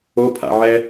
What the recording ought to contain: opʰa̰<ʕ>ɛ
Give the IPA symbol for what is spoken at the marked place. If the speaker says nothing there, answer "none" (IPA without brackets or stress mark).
ʕ